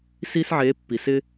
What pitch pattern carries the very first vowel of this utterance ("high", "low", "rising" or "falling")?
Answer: high